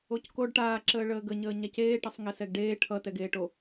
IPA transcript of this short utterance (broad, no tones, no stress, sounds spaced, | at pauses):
o c k o ɖ ʈ aː ǁ əː ɭ əː ɡ ə ɲ əː ɲ a c eː ʈ ʌ sˤ ŋ ɛ s ɛ ɡ ɖ eː ʈʰ ʌ t ɛ ɡ eː ʈ o